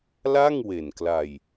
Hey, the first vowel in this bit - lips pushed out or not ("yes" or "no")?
no